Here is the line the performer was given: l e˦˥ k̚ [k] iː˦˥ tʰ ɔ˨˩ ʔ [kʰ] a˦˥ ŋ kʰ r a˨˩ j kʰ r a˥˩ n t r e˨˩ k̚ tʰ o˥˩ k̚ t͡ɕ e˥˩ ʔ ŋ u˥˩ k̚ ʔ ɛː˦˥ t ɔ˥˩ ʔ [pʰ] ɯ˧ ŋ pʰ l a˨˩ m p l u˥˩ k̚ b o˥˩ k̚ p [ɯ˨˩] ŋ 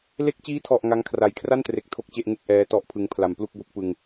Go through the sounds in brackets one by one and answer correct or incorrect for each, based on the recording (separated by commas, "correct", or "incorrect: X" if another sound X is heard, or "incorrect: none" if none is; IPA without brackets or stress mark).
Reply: incorrect: t͡ɕ, incorrect: ŋ, correct, incorrect: ɯ˧